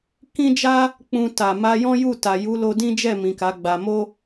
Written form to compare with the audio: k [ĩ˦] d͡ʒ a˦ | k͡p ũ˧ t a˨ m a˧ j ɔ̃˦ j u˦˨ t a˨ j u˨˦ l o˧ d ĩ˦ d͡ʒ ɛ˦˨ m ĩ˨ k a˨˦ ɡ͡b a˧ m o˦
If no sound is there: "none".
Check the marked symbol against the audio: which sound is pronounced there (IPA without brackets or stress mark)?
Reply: ĩ˦